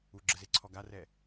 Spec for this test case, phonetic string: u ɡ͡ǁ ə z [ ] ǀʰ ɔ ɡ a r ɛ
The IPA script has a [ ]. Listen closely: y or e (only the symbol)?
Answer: e